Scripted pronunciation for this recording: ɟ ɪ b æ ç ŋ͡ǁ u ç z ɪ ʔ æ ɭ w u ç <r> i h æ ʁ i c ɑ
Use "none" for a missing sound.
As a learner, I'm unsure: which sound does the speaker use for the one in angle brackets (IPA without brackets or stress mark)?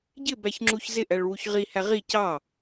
ʁ